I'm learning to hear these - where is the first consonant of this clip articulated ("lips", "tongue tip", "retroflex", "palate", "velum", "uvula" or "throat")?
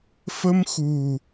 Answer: lips